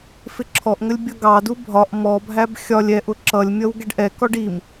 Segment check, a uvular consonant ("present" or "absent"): absent